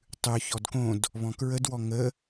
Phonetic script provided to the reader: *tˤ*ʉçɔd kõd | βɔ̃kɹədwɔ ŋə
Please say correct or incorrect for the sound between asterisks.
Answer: correct